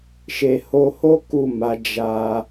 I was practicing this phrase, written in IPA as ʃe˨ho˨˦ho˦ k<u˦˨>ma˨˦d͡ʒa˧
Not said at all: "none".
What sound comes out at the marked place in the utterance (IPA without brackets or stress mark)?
u˦˨